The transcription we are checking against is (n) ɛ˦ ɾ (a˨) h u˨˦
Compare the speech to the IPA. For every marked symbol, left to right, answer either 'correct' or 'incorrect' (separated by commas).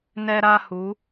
correct, incorrect